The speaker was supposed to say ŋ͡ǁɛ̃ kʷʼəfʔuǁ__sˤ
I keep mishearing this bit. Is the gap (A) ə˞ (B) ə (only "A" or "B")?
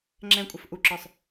A